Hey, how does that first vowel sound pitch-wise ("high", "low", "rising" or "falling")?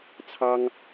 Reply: high